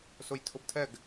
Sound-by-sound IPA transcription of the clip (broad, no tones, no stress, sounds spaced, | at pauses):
s ʊ j tʰ ʊ b tʰ ɛ ɡ